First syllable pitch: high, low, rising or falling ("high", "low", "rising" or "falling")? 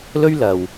high